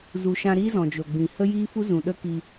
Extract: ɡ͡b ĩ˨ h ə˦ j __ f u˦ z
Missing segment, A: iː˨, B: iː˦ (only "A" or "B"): B